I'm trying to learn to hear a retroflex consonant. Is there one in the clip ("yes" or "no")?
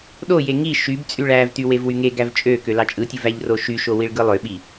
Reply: yes